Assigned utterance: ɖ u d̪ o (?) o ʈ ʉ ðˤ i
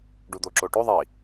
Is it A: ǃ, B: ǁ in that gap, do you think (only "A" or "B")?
B